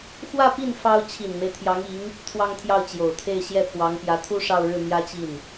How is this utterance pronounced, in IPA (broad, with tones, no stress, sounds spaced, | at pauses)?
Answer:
x w ä˥˧ p i˥˩ n f ɑ˥ ʊ̯ t͡ɕʰ i˨˩ n m e˦ ɪ̯ t̪ʰ j ɑ˧˥ ŋ i˧˥ ŋ | t̪ʰ w ɑ˥˧ ŋ t̪ʰ j ɑ˥˩ ʊ̯ t͡ɕ j o˨˩ ʊ̯ t̪ʰ e˥˧ ɪ̯ ɕ j ɛ˥˩ pʰ w ɑ˧˥ ŋ p j ä˧˥ t̪ʰ u˥ ʂ ɑ˥˧ ʊ̯ ɻ ɻ̩˥˩ m j ä˥ t͡ɕ i˥˩ n